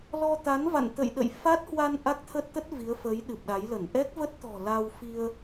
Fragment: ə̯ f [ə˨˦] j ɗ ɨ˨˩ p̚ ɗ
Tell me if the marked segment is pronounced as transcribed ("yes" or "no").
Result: yes